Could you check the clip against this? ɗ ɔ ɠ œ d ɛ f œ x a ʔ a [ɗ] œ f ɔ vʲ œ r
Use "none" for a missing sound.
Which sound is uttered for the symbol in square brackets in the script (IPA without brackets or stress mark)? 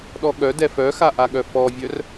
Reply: ɠ